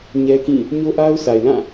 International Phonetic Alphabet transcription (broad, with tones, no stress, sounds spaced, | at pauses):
ɲ ɛ˦ k ĩ˦˨ | ɲ o˦ ʔ a˦ ʊ̯ sʰ a˨ ɪ̯ l ã˦˨